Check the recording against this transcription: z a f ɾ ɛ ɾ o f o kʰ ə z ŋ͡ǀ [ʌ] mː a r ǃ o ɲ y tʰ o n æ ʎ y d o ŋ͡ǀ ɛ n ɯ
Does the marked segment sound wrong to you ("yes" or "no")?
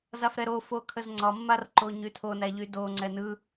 yes